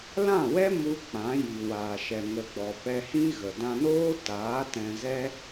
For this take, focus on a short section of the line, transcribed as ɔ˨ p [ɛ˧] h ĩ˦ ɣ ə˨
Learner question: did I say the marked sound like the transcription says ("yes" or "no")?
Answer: yes